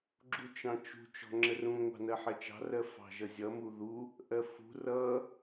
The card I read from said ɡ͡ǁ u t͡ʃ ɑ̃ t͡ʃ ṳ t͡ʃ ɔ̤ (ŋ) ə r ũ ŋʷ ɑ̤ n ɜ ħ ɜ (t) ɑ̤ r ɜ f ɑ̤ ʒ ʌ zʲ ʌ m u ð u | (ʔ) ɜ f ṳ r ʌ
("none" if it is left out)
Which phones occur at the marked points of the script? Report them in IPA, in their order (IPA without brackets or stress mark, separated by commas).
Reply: ŋ͡ǁ, t͡ʃ, ʔ